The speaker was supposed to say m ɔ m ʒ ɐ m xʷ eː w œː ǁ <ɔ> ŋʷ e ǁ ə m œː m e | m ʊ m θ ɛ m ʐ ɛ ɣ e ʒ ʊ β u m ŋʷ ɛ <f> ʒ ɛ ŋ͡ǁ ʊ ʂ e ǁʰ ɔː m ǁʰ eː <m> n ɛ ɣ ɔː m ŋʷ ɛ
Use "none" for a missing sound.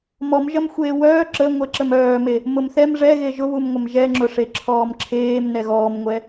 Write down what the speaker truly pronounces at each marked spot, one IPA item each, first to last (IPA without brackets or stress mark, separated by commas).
ə, m, m